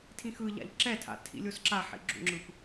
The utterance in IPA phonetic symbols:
tʰ ĩ x ɯ ʎ a̰ ʎ ǁ ɛ tʰ a̰ tʰ ḭ lʲ o s ǁ a ħ ḭ ɡ͡ǁ ṵ ŋ͡ǁ ɯ p

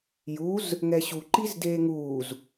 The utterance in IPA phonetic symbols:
j u z | ŋ ɛ ɕ u ǃ i z d eː ŋ uː z

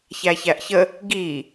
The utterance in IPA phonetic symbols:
ç æ ç æ ʔ ç ə | ɡ i

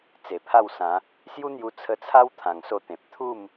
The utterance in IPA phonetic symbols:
t͡s e˨˩ pʰ a˥˧ w s ã˨˦ | s j u˦ n̪ j u˧ t͡sʰ ə˧ t͡sʰ a˦ w t̪ʰ ã˨˩ ŋ s o˧ t̪ ẽ˨ p̚ t̪ʰ u˥˧ m

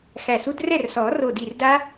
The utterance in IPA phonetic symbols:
x æ˧˩ s u˦˥ d r ɛ˥˩ r s ɔː˨˩˦ r o˧˩ d i˧˩ r d a˦˥

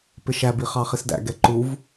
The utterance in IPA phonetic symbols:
p ɪ ʃ æ b i χ ɑ χ i s d æ̰ ɡ ɛ ǃ u v

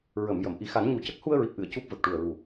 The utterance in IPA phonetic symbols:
ɹ ə˨˩˨ m j ə˨˩˨ m ʔ i˨˩˦ x a˨˩˦ n ɲ u˨˩ c ə˦˥ k̚ h u˧ ə̯ ɹ i˨˩ p̚ ʔ ɨ˨˩˨ ə̯ c u˦˥ p̚ v ə˨˩ k̚ ʈ u˨˩ ə̯ ɹ u˨˩

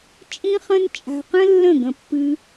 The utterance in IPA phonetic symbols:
t͡ʃʼ ĩ˦ χ ə̃˦ n t͡ʃʼ a̤˧ q ə̃˦ lː ə̃˦˨ ɡ ə̃˧ pː ɨ˧

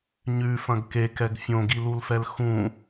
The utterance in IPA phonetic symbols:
ɲ ʉ f ɐ̃ ɡ k e k ɛ ɡ fʲ õ ɡ i l u l f ɛ l x ũ

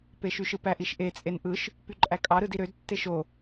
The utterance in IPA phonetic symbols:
p e ʃ y ʃ ɯ p æ ʔ i ʃ ʔ e t͡sʼ e n ʔ ɯ ʃ | p y ǃʼ æ kʼ ɑ ɾ ɯ d i ɾ ø d tː e ʃ o

